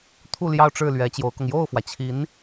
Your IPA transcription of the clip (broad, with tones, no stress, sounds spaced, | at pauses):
t̪ʰ u˥˧ l j ɑ˥˧ ʊ̯ ʈ͡ʂ ɻ̩˥˩ l ɥ ɛ˧˥ t͡ɕ j o˧˥ ʊ̯ k ʊ˧ ŋ j o˥˩ ʊ̯ f w ä˩ t͡ɕʰ i˧˥ n